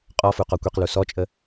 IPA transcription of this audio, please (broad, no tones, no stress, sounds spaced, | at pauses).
qʼ ɔ f u q ɔ kʷ i q l u s ɔ t͡ʃʼ ə